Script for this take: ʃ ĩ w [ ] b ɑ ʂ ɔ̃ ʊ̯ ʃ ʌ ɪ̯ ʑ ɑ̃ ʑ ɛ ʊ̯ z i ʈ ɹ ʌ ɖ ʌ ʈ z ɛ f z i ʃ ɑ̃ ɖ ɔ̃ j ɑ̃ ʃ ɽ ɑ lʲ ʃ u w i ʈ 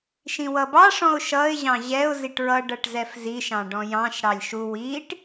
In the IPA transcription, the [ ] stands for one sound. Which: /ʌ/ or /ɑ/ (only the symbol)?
ʌ